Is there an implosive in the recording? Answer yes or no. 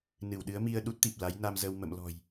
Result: yes